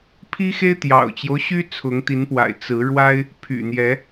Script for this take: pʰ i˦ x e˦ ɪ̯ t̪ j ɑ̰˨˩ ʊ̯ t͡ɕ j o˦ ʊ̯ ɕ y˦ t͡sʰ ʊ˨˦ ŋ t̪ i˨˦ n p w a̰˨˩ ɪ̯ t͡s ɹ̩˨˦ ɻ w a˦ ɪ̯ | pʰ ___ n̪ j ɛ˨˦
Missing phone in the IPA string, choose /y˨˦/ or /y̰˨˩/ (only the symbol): y̰˨˩